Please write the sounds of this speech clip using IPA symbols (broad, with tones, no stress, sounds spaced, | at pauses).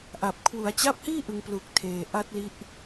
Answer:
ʔ a˨˩ p̚ kʰ w u˩˦ a̯ t͡ɕ a˦˥ p̚ h iː˥˩ ʔ ɯ˨˩ ŋ p l u˨˩ k̚ tʰ eː˨˩ ʔ a˦˥ t̚ l i˦˥ ʔ